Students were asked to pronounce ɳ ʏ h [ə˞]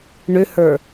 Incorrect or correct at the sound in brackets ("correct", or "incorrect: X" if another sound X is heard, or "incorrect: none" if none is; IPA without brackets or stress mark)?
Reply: correct